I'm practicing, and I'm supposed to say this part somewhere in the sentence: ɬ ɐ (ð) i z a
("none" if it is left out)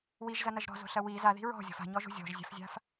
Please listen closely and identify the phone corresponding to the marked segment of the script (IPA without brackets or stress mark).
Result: w